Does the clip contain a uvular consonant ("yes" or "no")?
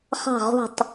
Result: yes